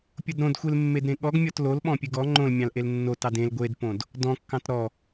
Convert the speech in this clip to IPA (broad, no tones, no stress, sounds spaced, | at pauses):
pʲ o d ɾ õ d xʷ e l mː e d ɾ ẽ ɠ ɔ ɡ mʲ ɔ t l o l ɓ ɔ̃ pʲ ɨ ɡ ɔ ŋ͡ǃ õ l mʲ ɑ̃ l ʔ e l nː o t ɑ d ẽ l ɡʷ e d p õ d | d ɔ̃ kː ɑ̃ t ɾ ɔ